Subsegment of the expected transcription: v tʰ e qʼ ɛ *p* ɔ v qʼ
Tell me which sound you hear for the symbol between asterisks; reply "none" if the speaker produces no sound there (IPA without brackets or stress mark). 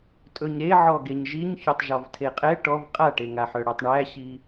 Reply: ʈ